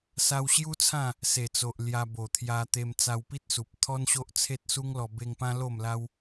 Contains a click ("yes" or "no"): no